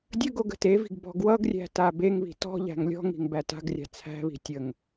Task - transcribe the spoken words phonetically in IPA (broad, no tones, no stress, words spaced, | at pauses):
dʲəɡoɡ ə̤tevi̤ɡ bɔ̤ɡwʌɡrʲæ̤ tabeŋβi̤ tɔ̤ʎæ̤ŋ lʲɔ̤ŋi̤ŋ bæta̤ɡrʲa̤ t͡sʰæ̤βi̤ tʲəŋ